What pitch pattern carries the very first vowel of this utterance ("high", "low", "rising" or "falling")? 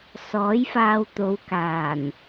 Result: rising